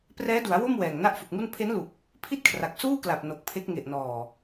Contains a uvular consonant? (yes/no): no